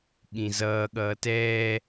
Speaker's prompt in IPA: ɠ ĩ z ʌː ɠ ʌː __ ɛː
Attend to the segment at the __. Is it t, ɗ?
t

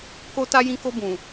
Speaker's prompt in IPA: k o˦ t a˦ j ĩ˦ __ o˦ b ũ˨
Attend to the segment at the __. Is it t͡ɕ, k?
k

